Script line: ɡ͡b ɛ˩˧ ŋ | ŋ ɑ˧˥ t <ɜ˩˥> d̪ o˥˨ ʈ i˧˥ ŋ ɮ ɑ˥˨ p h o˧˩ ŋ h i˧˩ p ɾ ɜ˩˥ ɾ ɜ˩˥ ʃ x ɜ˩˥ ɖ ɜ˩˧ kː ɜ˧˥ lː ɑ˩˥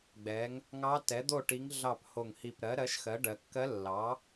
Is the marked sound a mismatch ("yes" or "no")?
yes